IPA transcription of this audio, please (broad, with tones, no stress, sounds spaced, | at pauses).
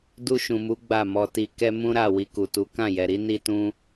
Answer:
d u˧ ʃ ũ˨ m u˨˦ ɡ͡b a˦˨ m ɔ˧ t i˧ k ɛ˦ m ũ˦ ɾ a˦˨ w i˧ k u˨ t u˨˦ k ã˦˨ j ɛ˨ ɾ i˨˦ n i˦ t ũ˦